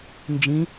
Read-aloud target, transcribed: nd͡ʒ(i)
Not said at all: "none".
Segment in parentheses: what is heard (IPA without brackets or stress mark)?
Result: ĩ